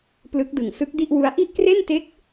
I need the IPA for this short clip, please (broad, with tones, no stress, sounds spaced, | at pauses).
p l ɯ˦˥ k̚ d ɯ˨˩ ŋ s ɯ˦˥ k̚ d i˥˩ ʔ w u˦˥ a̯ ʔ i˥˩ ʔ k r e˥˩ n t e˦˥ k̚